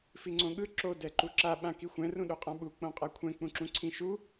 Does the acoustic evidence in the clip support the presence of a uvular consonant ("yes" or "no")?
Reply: yes